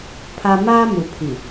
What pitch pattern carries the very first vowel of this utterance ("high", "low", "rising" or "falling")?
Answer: high